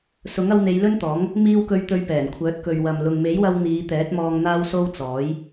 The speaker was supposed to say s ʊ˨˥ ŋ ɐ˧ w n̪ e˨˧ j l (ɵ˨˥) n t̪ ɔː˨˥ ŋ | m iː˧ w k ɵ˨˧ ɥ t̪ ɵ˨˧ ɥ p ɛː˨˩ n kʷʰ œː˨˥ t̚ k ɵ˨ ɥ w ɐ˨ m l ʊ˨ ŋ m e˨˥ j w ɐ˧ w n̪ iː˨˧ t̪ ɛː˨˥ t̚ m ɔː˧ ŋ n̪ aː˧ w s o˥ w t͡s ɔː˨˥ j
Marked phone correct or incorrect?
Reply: incorrect